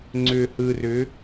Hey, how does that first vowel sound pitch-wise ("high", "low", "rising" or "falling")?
low